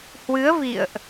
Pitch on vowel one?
rising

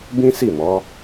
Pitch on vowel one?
high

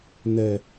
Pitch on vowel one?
low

